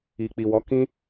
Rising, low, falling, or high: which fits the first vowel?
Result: low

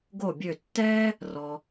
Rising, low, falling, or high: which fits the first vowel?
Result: falling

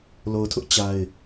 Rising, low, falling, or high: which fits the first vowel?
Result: low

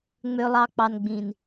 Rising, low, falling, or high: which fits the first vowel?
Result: low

